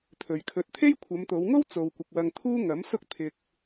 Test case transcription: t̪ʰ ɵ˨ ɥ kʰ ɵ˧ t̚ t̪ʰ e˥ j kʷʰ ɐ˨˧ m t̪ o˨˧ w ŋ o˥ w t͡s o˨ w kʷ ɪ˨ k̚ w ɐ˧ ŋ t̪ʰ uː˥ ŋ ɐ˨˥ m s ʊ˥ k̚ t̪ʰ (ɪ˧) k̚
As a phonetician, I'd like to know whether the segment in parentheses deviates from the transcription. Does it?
no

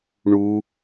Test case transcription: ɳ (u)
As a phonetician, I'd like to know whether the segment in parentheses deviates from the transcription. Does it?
no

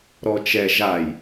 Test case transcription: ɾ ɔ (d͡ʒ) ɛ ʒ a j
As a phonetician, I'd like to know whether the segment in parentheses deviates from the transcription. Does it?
yes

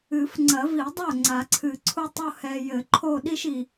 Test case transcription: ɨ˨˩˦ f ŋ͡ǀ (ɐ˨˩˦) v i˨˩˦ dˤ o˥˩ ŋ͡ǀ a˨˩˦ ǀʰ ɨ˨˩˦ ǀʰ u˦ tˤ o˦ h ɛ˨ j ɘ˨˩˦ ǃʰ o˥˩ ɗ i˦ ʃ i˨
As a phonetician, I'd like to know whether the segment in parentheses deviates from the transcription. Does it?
no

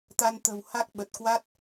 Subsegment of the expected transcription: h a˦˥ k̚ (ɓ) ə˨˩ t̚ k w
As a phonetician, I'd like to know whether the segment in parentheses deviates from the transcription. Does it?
no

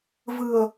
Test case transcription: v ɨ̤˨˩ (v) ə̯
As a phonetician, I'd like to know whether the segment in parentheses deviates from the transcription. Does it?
yes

